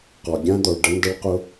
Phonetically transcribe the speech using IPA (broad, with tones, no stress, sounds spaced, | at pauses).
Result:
q ɔ˩ ɡʲ ã˥ d̪ ɔ˩ ɭ ɖ ə˥ n d ə˥ ɭ q ʊ˥